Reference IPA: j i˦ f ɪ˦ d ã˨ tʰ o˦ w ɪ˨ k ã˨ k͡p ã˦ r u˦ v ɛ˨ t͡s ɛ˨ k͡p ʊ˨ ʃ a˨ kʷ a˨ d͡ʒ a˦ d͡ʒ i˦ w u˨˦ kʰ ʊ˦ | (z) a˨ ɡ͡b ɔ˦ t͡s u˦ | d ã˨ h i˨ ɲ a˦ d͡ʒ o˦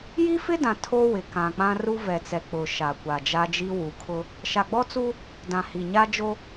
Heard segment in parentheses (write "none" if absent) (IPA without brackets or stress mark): ʃ